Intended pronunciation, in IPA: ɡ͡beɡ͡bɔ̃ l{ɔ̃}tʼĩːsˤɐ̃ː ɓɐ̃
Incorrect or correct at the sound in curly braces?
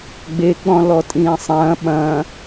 incorrect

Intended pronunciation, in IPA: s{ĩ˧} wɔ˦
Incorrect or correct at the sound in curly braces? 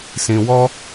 correct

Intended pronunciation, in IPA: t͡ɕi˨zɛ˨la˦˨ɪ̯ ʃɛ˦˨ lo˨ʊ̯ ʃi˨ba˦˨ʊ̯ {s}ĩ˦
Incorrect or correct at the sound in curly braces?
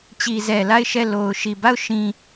incorrect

